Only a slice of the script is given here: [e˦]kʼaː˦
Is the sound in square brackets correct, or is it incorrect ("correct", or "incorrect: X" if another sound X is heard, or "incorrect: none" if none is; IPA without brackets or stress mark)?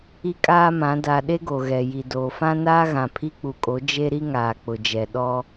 incorrect: i˦